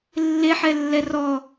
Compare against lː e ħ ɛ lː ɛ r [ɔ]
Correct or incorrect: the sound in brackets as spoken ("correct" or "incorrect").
correct